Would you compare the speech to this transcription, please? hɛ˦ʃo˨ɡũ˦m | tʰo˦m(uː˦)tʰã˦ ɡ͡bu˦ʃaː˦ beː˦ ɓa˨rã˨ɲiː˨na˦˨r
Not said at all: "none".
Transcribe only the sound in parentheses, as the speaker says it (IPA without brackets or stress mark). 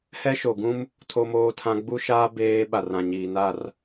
oː˦